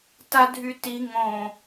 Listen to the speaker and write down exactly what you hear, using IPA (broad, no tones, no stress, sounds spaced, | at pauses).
t a dʱ y t i ŋ õ